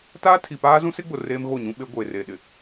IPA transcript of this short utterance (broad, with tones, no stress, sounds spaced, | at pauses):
t aː˦ tʰ i˨ p aː˦ z ũ˦ s ɪ˦ ɡ͡b ʊ˨ r eː˦ m ɣ o˦˨ ɲ ũ˦ ɓ e˦ ɡʷ eː˨ r eː˨ ɗ ɪ˨